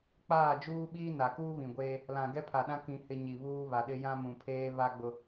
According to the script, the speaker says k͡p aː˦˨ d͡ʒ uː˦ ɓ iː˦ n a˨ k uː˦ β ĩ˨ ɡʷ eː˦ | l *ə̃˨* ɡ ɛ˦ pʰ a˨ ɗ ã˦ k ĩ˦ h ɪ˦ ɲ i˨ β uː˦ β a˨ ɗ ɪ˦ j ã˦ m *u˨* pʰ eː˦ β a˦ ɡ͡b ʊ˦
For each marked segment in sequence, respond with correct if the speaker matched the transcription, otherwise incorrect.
incorrect: ã˨, incorrect: ũ˨

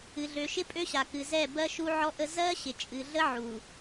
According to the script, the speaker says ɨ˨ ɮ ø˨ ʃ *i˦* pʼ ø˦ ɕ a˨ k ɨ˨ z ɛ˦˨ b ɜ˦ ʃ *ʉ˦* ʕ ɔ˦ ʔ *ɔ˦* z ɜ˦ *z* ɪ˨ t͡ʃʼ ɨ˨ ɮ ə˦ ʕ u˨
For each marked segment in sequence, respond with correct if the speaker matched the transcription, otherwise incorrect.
incorrect: ɪ˦, incorrect: u˦, incorrect: ə˦, incorrect: ɕ

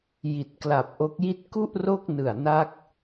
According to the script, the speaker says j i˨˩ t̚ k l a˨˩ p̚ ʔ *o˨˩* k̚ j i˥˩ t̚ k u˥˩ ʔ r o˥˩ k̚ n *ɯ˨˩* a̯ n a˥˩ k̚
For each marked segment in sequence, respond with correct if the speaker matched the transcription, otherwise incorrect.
incorrect: o˦˥, correct

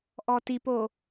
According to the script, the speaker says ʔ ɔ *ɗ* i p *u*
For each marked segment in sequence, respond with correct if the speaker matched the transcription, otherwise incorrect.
incorrect: t, incorrect: o

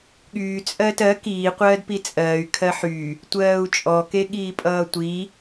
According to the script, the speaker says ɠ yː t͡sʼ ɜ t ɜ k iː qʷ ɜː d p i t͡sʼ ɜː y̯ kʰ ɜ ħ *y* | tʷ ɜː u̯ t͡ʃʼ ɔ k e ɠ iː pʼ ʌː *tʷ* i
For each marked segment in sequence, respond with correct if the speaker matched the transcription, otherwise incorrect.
correct, correct

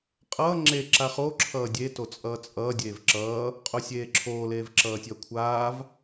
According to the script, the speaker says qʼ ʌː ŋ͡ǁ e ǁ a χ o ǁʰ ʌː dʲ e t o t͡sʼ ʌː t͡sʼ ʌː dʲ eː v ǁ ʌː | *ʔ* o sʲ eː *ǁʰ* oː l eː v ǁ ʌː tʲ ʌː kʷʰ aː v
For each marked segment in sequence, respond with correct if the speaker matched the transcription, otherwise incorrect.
incorrect: qʼ, correct

